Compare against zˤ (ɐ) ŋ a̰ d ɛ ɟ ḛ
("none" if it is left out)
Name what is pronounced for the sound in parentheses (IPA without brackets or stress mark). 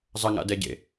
ɐ